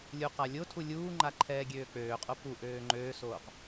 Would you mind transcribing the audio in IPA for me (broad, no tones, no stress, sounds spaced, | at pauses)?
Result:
lʲ u q a lʲ o tʰ u lʲ uː ŋ͡ǃ a ǃʰ ɛː ɡʲ øː k͡p øː qʼ o p u ʔ øː ŋ͡ǃ øː s oː q